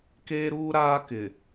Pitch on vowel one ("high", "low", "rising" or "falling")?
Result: high